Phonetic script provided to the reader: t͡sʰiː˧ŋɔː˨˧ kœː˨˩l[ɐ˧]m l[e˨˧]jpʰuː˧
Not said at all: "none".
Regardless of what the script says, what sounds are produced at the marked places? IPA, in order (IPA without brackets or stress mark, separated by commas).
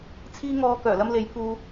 ɐ˧, e˨˧